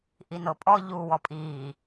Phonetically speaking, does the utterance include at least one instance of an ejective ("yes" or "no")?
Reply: yes